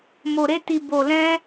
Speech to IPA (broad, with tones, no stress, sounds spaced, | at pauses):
m o˧ ɾ e˦ t i˧ b o˧ l ɛ̃˦